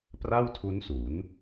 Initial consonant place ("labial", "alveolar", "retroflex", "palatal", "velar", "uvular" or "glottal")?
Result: labial